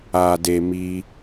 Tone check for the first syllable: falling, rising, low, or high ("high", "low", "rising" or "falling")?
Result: low